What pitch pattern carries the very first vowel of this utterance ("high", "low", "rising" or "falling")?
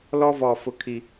high